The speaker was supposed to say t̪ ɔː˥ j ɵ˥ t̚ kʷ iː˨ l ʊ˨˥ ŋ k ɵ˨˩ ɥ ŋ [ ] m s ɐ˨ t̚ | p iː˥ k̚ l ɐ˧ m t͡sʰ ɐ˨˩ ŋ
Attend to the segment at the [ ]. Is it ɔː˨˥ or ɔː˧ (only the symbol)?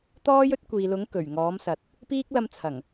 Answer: ɔː˨˥